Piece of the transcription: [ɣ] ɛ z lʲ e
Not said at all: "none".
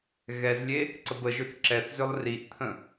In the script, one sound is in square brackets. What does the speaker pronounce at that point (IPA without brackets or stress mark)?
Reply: ɣ